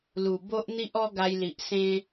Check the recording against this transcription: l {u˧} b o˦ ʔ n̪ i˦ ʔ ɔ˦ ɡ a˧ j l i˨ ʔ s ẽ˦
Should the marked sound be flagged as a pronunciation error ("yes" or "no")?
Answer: yes